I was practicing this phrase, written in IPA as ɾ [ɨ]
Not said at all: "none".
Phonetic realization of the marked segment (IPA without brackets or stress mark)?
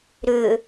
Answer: ʏ